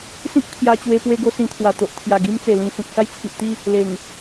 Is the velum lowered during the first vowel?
yes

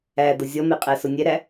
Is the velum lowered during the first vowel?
no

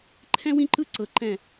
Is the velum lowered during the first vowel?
yes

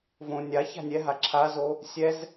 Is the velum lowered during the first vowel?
yes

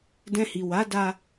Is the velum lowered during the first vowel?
yes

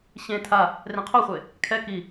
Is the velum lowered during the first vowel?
yes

